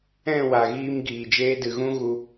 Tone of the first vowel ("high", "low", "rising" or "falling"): falling